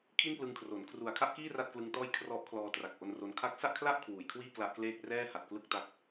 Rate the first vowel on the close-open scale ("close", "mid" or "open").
close